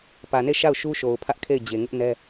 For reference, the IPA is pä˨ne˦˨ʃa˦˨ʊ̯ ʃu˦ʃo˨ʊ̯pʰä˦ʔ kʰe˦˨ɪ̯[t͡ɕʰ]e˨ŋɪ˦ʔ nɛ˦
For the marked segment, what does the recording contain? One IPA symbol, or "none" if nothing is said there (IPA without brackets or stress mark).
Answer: d͡ʑ